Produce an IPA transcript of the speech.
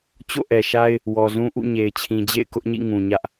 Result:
t͡ɕ o̰˦˨ ʔ ɛ˨ ʃ a˦ ɪ̯ | w ɔ˨ z ũ˦ ʔ ṵ˦˨ ɲ e˨ ɪ̯ t͡ɕʰ ĩ˨ d͡ʑ ḛ˦˨ ɪ̯ k ʊ˦ ʔ ɲ ḭ˦˨ ŋ ũ˨ ɲ ä˦ ʔ

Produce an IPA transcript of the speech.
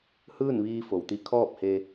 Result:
h ɯː˥˨ n ʋ iː˧ f o˩ w t̪ i˧ kʰ ɔː˥˨ p̚ h e˧

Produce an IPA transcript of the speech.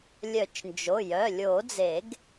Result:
lʲ œ˨˩˦ t͡ʃ n d͡ʒ o˩˧˩ j œ˩˧˩ lʲ o˨˩˦ d͡z e˨˩˦ ɡ

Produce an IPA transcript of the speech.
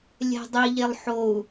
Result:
lʲ ɛ̤ dˤ i ʎ e lˠ ħ o u̯

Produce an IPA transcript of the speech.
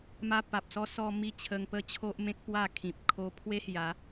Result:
m a˦ p a˨ p̚ s ɔ˦ s ɔ˧ m i˥˧ t͡ɕʰ ə˧ ŋ p ə˥˧ t͡ɕʰ o˦ ʔ m ẽ˦ k̚ p w a˥˧ kʰ ĩ˨ p̚ kʰ o˧ pʰ w e˦ h j a˨˦

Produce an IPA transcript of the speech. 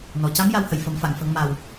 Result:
n ɔ˨˩ c a˧˥ m j a˧˥ w h ə˨˩˨ j f ə˨˩˦ m f a˨˩˨ ŋ f ə˨˩˦ ŋ m a˨˩ w

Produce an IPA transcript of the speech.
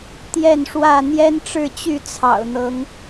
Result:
t̪ j ɛ˥˨ n ʂ w ä˥˨ n̪ j ɛ˦ n ʈ͡ʂ ɻ̩˥˨ t͡ɕ y˥˨ t͡sʰ ɑ̰˨˩ ʊ̯ n̪ ɤ˨˦ ŋ

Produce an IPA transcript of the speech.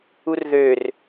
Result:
u r ð ø r

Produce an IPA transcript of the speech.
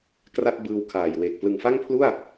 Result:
k r a˥˩ t̚ b ɯː˧ w kʰ aː˨˩ j w eː˨˩ k̚ p l ɯ˨˩ ŋ f a˥˩ ŋ pʰ l u˥˩ a̯

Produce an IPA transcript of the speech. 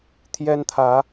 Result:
t̪ʰ j ɛ˦ n t̪ʰ ä˨˦

